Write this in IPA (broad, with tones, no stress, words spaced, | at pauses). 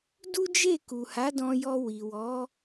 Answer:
du˦d͡ʒe˦˨ku˨ha˨˦ dɔ̃˧jɔ˧ wi˨wɔ˨˦